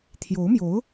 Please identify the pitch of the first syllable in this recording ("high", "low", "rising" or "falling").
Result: rising